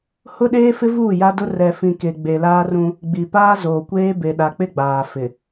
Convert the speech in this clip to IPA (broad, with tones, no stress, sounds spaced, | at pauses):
h ʊ˦ ɗ eː˦ f ɪ˦ v uː˦˨ j a˦ d ʊ˦ r ɛ˨ f ĩ˨ k e˨ ɡ͡b e˨ l aː˦ r ũ˦ | ɡ͡b i˨ p aː˦ z oː˨ kʷ eː˦ b e˨ ɗ a˨ k͡p ɪ˦ ɡ͡b aː˨ f ɪ˨